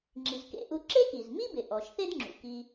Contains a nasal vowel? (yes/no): no